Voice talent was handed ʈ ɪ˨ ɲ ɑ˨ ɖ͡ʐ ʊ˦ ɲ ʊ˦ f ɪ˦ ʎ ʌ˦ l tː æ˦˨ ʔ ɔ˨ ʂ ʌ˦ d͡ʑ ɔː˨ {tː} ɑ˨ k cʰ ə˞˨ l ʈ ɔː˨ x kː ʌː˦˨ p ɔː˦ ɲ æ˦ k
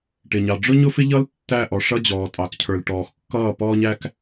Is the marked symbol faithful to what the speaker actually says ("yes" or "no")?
no